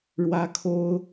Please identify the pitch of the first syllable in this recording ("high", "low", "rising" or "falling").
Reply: high